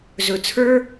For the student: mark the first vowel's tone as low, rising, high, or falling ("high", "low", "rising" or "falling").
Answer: low